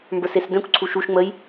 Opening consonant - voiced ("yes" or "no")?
yes